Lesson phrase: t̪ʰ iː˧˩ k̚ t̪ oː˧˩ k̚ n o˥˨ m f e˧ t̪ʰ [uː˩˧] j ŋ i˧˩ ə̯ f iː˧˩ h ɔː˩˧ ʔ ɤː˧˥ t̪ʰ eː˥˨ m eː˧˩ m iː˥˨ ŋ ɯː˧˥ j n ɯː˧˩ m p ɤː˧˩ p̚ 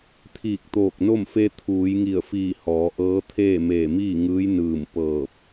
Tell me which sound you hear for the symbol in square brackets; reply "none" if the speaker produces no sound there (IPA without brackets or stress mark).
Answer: uː˩˧